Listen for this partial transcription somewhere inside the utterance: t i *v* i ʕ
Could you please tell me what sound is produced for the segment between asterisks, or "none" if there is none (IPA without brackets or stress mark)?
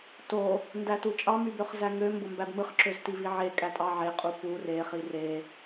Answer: v